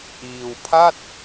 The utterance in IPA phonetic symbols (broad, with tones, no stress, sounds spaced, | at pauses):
ʔ iː˧ w pʰ a˥˩ t̚